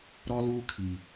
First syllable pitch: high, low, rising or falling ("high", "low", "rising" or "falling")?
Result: high